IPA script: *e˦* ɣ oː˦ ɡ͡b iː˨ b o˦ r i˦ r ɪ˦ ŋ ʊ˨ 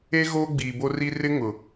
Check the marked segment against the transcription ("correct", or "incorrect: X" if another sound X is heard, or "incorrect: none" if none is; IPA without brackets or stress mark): correct